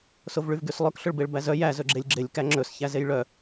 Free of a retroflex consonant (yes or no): no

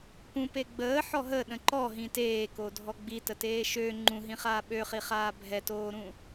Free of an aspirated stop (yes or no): yes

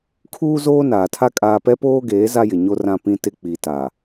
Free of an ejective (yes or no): no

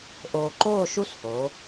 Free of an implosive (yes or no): yes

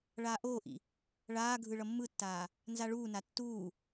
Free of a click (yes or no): yes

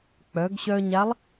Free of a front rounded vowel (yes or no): no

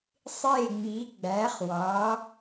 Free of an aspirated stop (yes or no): yes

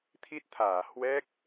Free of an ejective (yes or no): yes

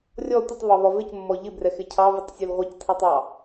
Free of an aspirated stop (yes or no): no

